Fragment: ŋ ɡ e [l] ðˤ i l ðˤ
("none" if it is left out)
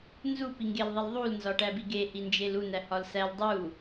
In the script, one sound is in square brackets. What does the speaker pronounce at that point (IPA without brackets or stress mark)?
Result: l